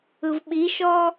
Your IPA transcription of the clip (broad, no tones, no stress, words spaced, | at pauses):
ɯvɓiʃɔ